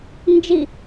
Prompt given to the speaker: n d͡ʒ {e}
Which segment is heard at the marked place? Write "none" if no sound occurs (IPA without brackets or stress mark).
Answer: i